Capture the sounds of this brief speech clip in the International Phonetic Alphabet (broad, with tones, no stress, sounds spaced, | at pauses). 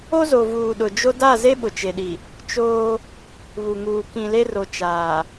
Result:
o˦ z o˨ v uː˨ ɗ ʊ˨ d͡ʒ o˦ d a˦˨ z e˦ ɓ ʊ˨ t͡ʃ e˨ ɗ i˨ | t͡ʃ oː˦ | β u˨ ŋ uː˨ k ĩ˨ l e˦ r o˨ t͡ʃ aː˨